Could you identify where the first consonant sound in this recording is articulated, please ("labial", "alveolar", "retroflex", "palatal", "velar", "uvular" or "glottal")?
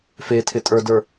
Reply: labial